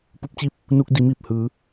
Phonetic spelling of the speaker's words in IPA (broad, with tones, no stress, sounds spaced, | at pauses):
p u˧ p̚ t͡ɕ i˥˨ p̚ | n uː˧ k̚ d i˩˧ m iː˧˩ p̚ h ɯː˩˧